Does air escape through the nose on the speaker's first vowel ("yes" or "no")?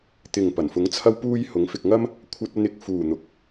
no